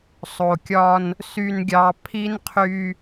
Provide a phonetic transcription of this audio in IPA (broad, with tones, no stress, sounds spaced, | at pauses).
sˤ o˨ kʲ ɒ˦ n | s y˨ n ɡʲ ɑ˨ pʰ i˦ n qʰ y˦